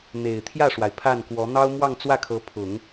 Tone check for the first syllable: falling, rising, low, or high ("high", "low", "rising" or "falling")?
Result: low